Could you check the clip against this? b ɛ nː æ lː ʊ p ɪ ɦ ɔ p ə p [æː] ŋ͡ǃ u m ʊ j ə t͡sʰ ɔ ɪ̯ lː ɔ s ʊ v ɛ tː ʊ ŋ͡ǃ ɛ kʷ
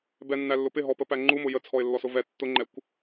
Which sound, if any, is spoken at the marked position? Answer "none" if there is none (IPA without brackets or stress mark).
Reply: æ